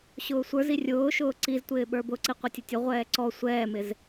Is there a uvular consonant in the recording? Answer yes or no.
yes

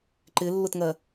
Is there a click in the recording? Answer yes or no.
yes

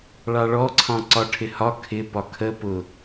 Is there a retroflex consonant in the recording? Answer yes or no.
yes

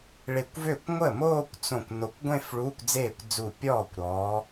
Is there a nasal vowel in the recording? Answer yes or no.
yes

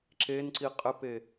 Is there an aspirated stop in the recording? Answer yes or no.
no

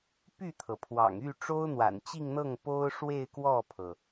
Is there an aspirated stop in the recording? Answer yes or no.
yes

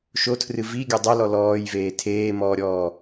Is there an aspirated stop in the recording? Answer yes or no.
yes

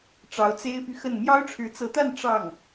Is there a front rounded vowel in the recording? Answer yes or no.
yes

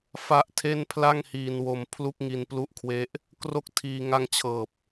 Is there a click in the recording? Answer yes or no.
no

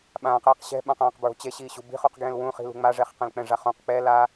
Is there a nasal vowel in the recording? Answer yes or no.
yes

